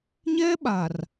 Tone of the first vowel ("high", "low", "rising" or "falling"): high